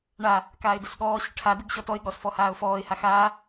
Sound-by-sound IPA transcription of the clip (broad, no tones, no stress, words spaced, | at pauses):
ɳa | kaːɪ̯dəsɠɔːɕʏ ʈʰa dəɡɕɔtɔɪ̯ɠɔs fɔhaːʊ̯fɔːɪ̯ha xaː